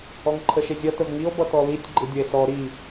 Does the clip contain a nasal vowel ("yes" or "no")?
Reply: no